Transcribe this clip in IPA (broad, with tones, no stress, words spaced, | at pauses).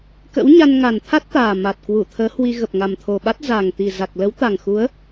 kə̰˧˥wɲa˧n ŋa˨˩nt̪ʰa˦˥t̚t̪aː˨˩ ma˨˩t̚ kwu˧˩t̪ʰəː˨˦hwi˧ ɣə˨˩p̚ŋa˨˩mt̪ʰo˨˩ɓa˦˥t̚ za˨˩ŋt̪i˨˩za˨˩k̚ lə˨˦wt̪a˨˩ŋxu˨˦ə̯